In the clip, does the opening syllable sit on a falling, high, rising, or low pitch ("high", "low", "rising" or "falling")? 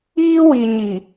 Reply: high